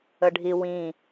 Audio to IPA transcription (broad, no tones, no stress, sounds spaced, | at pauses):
ə ɖʱ i w ĩ